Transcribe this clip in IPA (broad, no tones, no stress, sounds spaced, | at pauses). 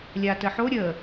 lʲ a t ə ħ o ɾʲ ə